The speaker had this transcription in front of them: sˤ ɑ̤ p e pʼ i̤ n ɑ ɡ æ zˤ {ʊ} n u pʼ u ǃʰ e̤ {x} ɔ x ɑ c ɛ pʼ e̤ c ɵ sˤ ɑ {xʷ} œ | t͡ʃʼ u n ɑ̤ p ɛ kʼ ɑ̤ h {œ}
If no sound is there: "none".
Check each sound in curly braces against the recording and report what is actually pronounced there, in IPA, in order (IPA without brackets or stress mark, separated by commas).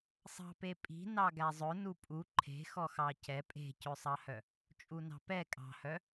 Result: ɵ, x, h, œ